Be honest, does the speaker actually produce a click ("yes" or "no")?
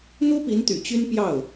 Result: no